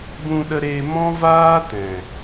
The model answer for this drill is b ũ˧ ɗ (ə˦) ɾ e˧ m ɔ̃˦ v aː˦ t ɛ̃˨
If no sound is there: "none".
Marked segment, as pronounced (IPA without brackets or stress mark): ə˧